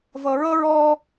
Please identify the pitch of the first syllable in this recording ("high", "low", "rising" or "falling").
low